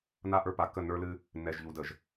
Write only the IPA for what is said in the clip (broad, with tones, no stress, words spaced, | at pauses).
na˦˨ʔə˞˦pa˨kːə˦˨ nə˞˦lɨ˦ | nːɛ˨ʒʎu˨də˨ʒ